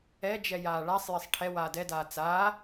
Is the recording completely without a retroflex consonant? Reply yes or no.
no